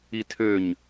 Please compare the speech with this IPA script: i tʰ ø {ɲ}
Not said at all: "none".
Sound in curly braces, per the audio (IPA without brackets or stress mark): ɲ